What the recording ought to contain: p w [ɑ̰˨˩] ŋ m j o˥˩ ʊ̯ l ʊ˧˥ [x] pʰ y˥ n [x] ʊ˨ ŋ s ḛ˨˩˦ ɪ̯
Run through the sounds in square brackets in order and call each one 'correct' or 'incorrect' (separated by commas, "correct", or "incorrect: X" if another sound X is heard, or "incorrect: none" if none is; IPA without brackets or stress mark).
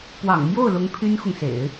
correct, incorrect: ŋ, correct